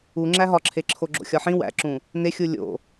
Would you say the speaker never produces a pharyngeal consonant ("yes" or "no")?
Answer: no